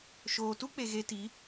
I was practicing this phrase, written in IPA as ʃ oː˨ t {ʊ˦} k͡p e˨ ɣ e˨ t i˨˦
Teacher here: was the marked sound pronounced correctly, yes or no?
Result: no